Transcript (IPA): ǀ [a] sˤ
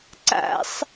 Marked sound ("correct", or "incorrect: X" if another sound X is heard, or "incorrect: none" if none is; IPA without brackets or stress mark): incorrect: a̰